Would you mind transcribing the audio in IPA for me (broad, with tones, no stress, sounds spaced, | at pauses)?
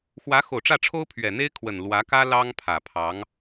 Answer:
x w ä˧˥ x o˨˩ ʊ̯ ʈ͡ʂ ä˥˩ ʈ͡ʂʰ o˥ ʊ̯ pʰ ɥ ɛ˨˩ n̪ e˥ ɪ̯ kʰ w ə˨˩ n l w ä˧˥ k ä˥ l ɑ˥ ŋ pʰ ä˨˩ pʰ ɑ˧˥ ŋ